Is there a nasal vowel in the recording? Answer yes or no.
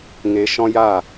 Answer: yes